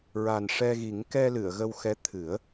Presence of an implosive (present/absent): absent